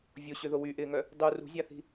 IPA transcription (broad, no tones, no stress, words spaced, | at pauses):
vʲoɕʏðo wyʔɪːŋœ | dˤu rṳzʲaθi̤